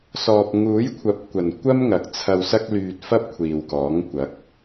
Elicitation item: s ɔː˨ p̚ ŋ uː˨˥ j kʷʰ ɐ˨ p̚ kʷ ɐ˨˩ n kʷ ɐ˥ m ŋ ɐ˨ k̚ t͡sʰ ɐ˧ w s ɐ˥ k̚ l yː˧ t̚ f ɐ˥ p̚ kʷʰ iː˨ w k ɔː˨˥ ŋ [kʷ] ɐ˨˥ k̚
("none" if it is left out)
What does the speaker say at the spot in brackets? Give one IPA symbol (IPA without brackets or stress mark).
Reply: kʷ